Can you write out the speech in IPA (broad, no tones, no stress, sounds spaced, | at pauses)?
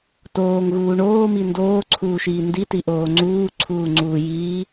t oː ŋ ɣ uː ɳ oː m i n d oː ǀʰ uː ʃ iː n d i t i ʔ oː ŋ͡ǀ uː ǀʰ uː ŋ͡ǀ uː j iː